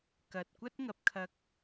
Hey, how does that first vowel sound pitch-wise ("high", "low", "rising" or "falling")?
low